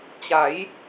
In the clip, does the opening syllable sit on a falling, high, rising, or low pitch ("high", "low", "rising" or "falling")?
rising